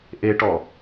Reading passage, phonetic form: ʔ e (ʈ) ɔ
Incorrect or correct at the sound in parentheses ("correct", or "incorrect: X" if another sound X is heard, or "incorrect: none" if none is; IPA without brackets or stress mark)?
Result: correct